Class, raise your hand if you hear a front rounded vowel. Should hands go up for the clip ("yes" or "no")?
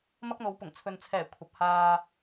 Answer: no